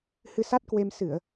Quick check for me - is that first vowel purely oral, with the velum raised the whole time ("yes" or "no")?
yes